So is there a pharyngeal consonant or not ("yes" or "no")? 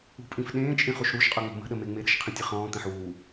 yes